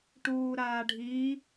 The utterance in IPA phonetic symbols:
ʈ uː ɾ aː ɖʱ i

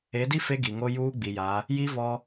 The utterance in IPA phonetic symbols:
e˨˦ d i˦ f e˦ ɡ i˨ ŋ o˦ j uː˦ ɡ͡b i˨ j a˨˦ | j i˦ v ɔ˦

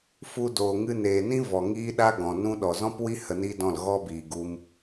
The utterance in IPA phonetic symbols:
f u˧ d oː˨ ŋ ɨ˧ n eː˨ n ĩ˦ v ɔ˨ ŋ iː˦ ɗ a˦ ɡ ɔ̃˨ n ũ˧ ɗ ɔ˨ z ɔ̃˦ p w i˦ h ə˧ n i˦ d ɔ̃˦˨ l ɣ ɔ˦ b iː˨ ɡ u˧ m

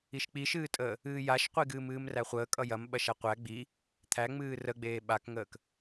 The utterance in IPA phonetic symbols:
i ʃ k͡p i ʃ ɨː tʼ əː | ɨː j a ʃ qʷ i ɡ ɨː m ɨː m r æ χʷ əː kʼ ʌ j ɐ m ɓ ɐ ʃ a qʷ æ ɡ͡b i | t̪ʰ æ ŋ͡m ɨː r ə ɡ͡b eː ɓ a k ŋ əː k

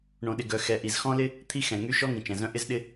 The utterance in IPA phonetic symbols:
ɳ õ˩ ɗ ɪ˩ ɡ œ˩ x ɛ˩ ʔ i˩ z x ɔ̃˥ l ɪ˥ | t̪ʰ i˥ x ɛ̃˩ ŋ y˥ ʃ ɔ˥ ŋ ĩ˩ t͡ʃ ɛ̃˩ z œ̃˥ ʔ ɪ˥ z ɗ ɪ˥

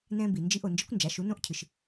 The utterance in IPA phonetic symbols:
n ɛ̃˧ b i˩ n d͡ʒ i˧ ʔ o˩ n d͡ʒ ɘ˧˥ kʷ n d͡ʒ a˩˧ ʃ u˩˧ n õ˧˥ ʔ cʰ ɨ˩ ʃ

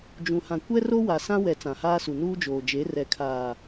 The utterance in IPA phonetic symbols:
d͡ʒ ũ˨ h ã˨ kʷ ɛ˦ r o˦ w a˨ s ã˦ w ɛ˨ t͡s ã˨ h aː˦ s u˨ n uː˦ d͡ʒ oː˨ d͡ʒ e˨˦ r ɛ˨ kʰ aː˨

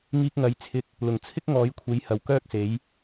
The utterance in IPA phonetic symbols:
ŋ iː˧ k̚ ŋ ɐ˨ j t͡sʰ ɪ˧ k̚ | l ʊ˨˩ ŋ t͡sʰ ɪ˥ k̚ ŋ ɔː˨˥ j kʷʰ e˨˥ j h ɐ˨ w k œː˥ k̚ s e˨˥ j

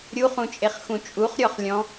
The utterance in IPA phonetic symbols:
ɾʲ u χ ũ t͡ʃʼ e χ x ũ t͡ʃʼ u χ ɾʲ ɔ χ lʲ ɔ̃

